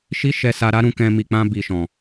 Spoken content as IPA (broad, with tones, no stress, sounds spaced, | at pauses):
ʃ i˦ ʃ ɛ˧ s a˧ ɾ a˦ ɾ ũ˧ k ɛ̃˧ m i˨ k͡p ã˧ b i˨ ʃ ɔ̃˨